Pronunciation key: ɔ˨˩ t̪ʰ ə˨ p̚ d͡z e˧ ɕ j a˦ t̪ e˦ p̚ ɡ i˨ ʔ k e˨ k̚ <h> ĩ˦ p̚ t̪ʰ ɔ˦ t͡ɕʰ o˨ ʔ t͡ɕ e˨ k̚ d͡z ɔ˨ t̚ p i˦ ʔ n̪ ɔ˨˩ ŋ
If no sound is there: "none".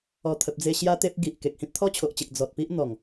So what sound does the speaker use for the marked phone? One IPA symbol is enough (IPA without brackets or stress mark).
h